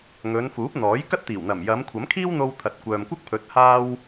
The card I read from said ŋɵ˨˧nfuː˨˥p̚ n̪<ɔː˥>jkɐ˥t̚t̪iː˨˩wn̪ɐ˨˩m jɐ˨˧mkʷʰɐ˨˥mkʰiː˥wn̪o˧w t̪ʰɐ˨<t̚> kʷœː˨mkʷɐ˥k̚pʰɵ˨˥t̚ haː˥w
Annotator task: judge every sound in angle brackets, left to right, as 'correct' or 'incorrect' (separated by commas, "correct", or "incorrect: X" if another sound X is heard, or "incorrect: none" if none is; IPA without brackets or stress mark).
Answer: incorrect: ɔː˨˥, correct